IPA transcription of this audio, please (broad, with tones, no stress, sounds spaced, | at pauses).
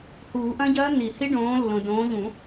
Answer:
h uː˨˩˦ ʔ ɐ̃˦˥ ɟ ɐː˦˥ n̪ i˨˩˦ h i˦˥ ɖ õː˨˦ lː õ˨ d õː˨˦ ʎ ũ˨˩˦